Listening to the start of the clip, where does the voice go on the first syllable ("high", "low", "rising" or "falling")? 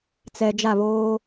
low